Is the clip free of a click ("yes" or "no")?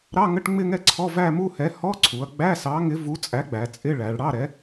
no